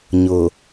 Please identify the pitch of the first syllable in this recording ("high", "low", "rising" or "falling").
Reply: low